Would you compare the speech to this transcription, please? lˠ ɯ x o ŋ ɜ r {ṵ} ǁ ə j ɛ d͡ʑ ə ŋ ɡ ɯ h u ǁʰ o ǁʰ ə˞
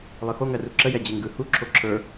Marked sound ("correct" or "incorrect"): incorrect